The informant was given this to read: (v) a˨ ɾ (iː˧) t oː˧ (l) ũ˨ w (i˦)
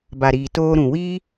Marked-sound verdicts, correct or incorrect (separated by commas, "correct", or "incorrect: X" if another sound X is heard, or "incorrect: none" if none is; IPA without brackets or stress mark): incorrect: b, incorrect: iː˨, incorrect: ɾ, incorrect: iː˦